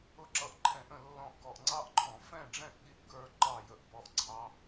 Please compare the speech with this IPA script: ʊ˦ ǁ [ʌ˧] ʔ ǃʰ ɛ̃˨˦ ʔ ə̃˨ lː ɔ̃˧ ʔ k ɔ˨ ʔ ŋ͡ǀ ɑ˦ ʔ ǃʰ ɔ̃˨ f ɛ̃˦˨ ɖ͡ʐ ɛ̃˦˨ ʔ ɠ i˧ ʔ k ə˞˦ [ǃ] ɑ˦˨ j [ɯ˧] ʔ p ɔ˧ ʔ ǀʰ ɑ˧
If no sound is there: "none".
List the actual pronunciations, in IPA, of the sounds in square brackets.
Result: ʌ˧, ǃ, ə˧

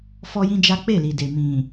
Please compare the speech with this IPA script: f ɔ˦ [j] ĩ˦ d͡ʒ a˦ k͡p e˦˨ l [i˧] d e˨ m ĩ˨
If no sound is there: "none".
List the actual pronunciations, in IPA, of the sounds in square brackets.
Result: j, i˨

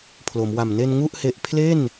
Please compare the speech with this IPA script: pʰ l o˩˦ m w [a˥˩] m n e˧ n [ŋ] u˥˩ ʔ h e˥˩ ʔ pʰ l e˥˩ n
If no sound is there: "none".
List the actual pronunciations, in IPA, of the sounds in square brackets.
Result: a˨˩, ŋ

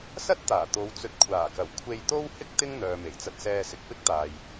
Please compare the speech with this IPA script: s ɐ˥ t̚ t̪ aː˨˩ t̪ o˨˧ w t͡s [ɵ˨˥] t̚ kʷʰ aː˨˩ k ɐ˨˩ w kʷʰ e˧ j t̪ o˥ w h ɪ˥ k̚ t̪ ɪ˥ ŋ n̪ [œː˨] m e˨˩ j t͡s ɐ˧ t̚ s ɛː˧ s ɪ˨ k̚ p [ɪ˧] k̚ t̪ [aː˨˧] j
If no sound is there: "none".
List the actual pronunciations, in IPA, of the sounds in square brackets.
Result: ɵ˨, œː˨, ɪ˥, aː˨

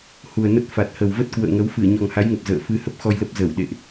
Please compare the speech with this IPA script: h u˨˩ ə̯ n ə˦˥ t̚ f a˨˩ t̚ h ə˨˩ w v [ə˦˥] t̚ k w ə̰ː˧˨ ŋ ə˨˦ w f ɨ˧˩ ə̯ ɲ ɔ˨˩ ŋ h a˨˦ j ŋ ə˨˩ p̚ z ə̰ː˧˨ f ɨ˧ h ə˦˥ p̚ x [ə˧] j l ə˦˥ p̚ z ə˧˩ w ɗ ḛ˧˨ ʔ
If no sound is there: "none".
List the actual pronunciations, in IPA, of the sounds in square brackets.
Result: ə˦˥, ɔ˧

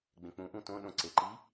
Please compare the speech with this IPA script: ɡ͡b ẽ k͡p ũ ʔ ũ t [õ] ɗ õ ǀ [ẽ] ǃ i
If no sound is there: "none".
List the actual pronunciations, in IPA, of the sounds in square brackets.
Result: õ, e

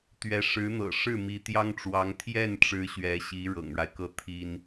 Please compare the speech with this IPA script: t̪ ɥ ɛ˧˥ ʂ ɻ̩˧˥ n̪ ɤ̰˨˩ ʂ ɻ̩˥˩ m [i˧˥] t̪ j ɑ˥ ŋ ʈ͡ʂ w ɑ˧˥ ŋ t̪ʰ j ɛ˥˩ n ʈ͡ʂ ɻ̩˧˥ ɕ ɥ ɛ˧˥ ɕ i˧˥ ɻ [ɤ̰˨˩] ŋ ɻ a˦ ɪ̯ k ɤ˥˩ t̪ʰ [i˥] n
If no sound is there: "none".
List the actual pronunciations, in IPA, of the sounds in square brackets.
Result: i˧˥, ɤ̰˨˩, i˥

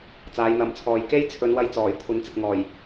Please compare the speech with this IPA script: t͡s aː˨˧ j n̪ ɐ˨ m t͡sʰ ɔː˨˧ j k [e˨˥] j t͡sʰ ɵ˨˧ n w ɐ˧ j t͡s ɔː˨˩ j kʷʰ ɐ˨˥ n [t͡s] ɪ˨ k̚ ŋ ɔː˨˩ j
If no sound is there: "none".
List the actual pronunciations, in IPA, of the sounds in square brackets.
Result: e˥, t͡s

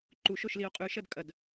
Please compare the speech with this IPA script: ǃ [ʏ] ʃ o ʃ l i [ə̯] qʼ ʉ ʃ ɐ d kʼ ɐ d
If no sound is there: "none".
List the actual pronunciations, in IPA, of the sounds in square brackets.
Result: u, ʊ̯

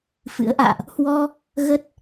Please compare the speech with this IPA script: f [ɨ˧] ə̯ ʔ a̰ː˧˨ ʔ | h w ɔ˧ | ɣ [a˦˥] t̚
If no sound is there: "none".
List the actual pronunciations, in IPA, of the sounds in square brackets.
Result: ɨ̰˧˥, ə˦˥

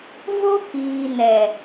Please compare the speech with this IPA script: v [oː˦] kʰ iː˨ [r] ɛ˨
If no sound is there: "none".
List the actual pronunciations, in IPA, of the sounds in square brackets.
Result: o˦, n

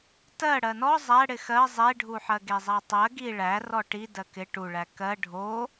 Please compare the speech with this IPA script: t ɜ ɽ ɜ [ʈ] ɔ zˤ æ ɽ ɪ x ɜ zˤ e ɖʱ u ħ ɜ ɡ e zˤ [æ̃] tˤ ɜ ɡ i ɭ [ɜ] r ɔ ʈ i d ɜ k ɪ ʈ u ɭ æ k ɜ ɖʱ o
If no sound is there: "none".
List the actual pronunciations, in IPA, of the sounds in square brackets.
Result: n, æ, æ

